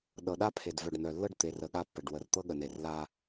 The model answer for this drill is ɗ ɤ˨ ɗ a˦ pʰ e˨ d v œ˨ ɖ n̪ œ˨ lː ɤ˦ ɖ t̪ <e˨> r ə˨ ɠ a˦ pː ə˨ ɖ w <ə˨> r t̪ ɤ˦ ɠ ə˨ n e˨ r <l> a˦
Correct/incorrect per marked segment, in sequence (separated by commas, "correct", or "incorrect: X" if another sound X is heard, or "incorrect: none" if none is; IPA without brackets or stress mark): correct, correct, correct